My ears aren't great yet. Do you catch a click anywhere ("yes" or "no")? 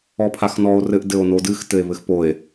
no